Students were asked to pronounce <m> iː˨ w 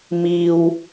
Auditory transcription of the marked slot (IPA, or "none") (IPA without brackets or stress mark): m